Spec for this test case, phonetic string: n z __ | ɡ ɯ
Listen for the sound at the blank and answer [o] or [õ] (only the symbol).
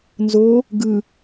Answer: o